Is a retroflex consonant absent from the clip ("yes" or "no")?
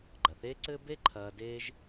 yes